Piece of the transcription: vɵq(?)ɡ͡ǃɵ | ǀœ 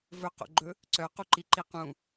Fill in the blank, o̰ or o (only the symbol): o̰